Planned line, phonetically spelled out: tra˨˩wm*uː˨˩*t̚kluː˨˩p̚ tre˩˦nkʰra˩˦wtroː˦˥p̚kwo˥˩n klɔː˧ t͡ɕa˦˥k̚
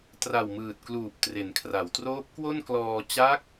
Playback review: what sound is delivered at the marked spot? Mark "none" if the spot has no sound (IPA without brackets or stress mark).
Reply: ɯː˨˩